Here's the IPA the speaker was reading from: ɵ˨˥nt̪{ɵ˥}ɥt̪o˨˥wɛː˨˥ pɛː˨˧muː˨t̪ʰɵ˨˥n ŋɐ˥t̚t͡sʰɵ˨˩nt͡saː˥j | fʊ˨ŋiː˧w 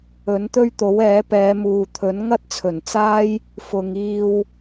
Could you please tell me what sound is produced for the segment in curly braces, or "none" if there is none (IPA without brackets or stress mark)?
ɵ˥